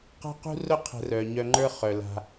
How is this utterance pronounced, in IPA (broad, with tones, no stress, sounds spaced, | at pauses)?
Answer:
q a̤˥ q ṳ˥ r ʊ˥ qʰ ə̤˧ r œ˩ ɲ œ˧ ŋ͡ǃ ə˞˥ χ œ˩ l a̤˩